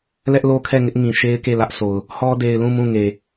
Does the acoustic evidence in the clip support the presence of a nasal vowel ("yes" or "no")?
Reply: yes